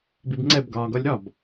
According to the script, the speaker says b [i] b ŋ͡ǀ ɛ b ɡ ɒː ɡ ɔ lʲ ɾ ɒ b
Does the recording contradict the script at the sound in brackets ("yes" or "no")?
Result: no